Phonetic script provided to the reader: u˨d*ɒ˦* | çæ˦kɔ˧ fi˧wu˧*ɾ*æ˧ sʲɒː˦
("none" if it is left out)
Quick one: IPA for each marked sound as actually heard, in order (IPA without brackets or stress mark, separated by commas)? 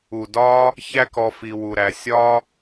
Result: ɒː˦, ɾ